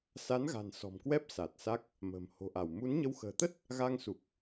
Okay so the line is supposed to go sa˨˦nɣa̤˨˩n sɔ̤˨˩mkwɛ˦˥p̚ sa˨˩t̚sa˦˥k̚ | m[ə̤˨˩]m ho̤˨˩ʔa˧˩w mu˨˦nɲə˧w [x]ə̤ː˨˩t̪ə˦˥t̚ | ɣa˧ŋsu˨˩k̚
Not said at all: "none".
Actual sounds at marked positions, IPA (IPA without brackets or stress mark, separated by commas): ə̤˨˩, x